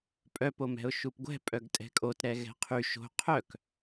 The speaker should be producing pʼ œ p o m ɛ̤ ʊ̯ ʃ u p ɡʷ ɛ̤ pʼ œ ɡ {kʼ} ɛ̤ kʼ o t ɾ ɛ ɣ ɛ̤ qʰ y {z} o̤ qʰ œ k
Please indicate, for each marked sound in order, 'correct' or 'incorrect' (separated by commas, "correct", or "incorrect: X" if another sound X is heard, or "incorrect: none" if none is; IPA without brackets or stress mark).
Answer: incorrect: tʼ, incorrect: ʃ